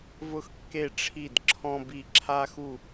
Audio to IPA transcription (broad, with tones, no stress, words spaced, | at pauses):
vʊ˥xkːe˥˨ʈ͡ʂʰi˥˨d ǁʰɔ̃˥bi˥˨ ǁʰa˥xu˥˨